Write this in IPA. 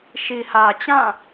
ʃi˨hä˨t͡ɕã˦˨

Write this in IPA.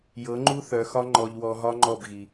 jɤ˨˦ŋ͡ǃu˦ θœ˨xɒ˦ ŋ͡ǃɔ˨ʎ wɔ˧ɦɒ˦ ŋ͡ǃɔ˦˨bɣi˨

